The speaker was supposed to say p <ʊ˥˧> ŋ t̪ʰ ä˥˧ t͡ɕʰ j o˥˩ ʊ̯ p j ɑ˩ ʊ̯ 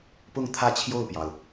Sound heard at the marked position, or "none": ʊ˥˧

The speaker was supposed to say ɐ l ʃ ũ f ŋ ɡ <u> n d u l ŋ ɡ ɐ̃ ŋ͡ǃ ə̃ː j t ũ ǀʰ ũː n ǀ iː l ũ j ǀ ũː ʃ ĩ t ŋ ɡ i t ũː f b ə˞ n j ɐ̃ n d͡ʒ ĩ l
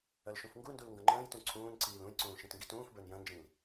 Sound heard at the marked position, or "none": u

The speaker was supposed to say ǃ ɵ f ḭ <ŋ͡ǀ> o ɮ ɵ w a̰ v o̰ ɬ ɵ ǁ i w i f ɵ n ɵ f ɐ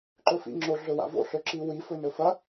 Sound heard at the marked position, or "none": ŋ͡ǁ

